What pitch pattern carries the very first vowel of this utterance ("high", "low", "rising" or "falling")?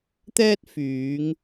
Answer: high